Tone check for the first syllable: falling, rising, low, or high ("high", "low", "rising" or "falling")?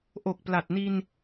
low